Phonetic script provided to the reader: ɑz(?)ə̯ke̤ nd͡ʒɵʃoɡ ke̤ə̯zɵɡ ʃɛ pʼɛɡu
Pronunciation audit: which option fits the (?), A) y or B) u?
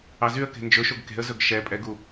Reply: A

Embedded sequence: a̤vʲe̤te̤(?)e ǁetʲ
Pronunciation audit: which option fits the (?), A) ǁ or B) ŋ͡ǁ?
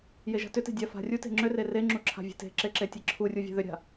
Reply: A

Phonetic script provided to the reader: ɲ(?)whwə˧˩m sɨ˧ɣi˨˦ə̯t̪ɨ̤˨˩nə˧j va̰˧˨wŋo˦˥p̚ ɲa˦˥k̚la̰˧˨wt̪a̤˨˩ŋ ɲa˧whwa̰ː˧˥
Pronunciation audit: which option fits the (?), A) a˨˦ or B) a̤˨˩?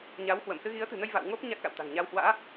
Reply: A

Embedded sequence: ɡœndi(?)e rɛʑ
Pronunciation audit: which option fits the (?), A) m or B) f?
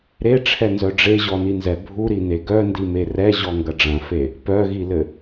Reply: A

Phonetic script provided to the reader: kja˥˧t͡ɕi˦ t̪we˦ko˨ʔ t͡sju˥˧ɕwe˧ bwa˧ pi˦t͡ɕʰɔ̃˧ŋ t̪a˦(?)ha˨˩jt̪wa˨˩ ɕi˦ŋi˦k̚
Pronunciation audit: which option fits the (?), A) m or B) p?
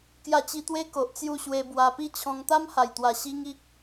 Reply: A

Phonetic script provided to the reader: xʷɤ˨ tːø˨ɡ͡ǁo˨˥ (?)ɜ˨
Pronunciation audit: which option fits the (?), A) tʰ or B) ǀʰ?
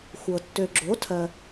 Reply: A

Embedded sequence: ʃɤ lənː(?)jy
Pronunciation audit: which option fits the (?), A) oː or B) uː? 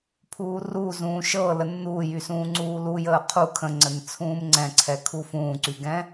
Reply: B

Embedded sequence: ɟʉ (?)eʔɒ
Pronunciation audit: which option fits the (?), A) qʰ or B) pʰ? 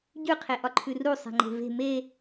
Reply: A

